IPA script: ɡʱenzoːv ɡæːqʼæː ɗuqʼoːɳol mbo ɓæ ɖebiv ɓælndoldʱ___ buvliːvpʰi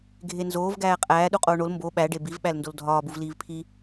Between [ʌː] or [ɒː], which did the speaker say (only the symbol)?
ɒː